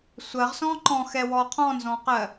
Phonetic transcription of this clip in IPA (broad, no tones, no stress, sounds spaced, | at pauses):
sʷ ɜ ʁ s ɔ̃ː ǃ ɔ̃ː x ɛ w ɔː qʰ ɔ̃ː n z ɔ̃ː q ɜ